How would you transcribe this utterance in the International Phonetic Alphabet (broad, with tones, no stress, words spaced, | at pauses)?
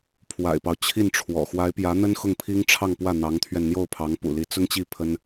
pʰwa̰˨˩ɪ̯pɑ˦ʊ̯ t͡ɕʰi˥˩nʈ͡ʂʰwɔ̰˨˩ xwa˧˥ɪ̯pjä˧˥n̪ə˥n xʊ˥˩ŋpʰi˥ŋʈ͡ʂʰɑ˥˧ŋpwä˥˩ n̪ɑ˧˥ŋt̪ʰɥɛ˧n n̪jo˥˩ʊ̯pʰɑ˧˥ŋpṵ˨˩li˧˥ t͡sʊ˥ŋt͡ɕi˥˩ pʰə˥n